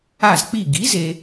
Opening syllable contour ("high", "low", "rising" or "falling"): falling